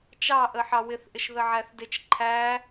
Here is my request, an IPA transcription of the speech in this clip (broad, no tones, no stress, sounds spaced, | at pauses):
t͡ʃ ɑ ʔ ə ħ ɑ w ɪ θ ʔ ɪ ʃ ð ə ʕ æ θ d ɪ t͡ʃ ǃʰ æ